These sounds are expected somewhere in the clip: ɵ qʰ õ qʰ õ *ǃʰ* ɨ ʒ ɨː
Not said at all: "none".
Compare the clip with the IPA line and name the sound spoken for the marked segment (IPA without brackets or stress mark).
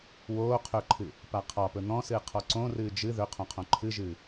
ǃʰ